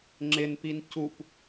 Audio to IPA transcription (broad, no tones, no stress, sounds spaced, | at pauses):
ŋ͡ǁ ɪ n p i n c u p